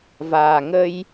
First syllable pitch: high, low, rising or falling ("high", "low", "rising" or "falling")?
low